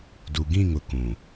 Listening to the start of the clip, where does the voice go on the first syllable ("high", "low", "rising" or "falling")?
low